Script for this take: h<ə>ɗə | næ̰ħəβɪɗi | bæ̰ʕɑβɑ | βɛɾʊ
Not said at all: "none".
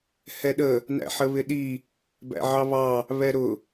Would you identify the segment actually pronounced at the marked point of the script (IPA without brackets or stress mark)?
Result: ɛ